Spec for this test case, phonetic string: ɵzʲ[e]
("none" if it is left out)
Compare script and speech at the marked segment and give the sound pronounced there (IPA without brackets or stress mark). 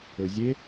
e